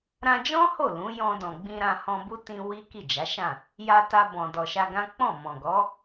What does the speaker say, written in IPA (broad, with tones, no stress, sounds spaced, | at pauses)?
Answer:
ɾ ã˧ d͡ʒ ɔ̃˦ h o˦˨ l ũ˨˦ j ɔ̃˧ d ɔ̃˨ ɡ͡b ĩ˧ ɾ ã˧ h ɔ̃˧ b u˦ t ĩ˧ w i˦ k i˦˨ d͡ʒ a˨˦ ʃ ã˦˨ | j a˧ t a˧ b ɔ̃˨ d ɔ˨ ʃ a˧ ɡ ã˦ k͡p ɔ̃˦˨ m ɔ̃˨ ɡ ɔ˨˦